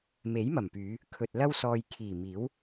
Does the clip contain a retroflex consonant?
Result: no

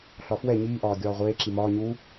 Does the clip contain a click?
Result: yes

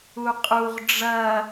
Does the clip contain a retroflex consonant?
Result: yes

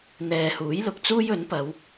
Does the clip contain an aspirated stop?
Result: no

